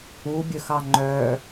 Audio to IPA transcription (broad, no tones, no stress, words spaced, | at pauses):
ubʲɵxɑ ŋ͡ǃœ